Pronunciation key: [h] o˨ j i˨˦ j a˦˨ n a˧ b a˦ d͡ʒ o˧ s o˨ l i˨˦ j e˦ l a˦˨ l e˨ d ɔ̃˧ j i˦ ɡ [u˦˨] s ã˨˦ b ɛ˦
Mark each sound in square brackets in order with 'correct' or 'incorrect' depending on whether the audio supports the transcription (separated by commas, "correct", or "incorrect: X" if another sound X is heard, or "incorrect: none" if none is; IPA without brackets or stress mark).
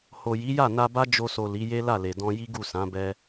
correct, correct